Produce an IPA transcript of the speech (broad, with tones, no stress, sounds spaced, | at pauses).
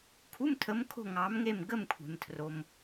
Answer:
kʰ u˧˥˧ m tʰ ə˨˦ m kʰ o̤˦˨ ŋ ɑ˨˦ m ŋ e˦˨ m ɡ ə˦˨ m kʷʰ e̤˩ m tʰ r o˩ m